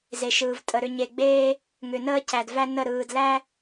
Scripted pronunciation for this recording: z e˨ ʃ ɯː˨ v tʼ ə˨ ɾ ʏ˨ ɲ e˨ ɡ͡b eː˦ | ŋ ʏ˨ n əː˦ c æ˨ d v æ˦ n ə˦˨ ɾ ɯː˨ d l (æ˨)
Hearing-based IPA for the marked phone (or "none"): æ˦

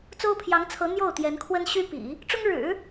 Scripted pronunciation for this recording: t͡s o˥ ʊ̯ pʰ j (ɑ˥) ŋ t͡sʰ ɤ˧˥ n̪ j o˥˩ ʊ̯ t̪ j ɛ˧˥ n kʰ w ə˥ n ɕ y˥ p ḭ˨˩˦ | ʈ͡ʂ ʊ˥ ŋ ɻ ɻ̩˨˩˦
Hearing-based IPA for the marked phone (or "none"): ɑ˧˥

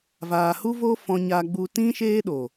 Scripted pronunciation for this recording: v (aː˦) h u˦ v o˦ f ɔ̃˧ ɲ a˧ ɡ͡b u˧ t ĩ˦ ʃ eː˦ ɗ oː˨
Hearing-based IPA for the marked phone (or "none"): aː˨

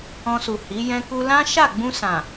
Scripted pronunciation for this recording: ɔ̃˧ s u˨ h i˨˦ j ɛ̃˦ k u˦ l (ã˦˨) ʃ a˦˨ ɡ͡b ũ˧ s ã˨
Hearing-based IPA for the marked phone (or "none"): ã˦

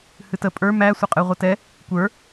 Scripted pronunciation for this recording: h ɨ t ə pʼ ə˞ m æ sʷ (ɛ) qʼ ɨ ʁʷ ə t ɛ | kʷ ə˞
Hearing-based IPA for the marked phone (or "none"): ə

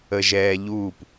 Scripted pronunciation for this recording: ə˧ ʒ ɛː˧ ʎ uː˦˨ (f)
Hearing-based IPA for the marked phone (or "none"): p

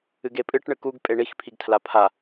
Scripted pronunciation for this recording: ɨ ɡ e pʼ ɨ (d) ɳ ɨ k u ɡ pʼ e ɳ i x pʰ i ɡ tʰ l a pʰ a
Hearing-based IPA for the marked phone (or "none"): ʈ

